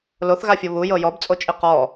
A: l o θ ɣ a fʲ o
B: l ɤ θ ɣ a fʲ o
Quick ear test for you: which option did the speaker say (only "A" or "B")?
A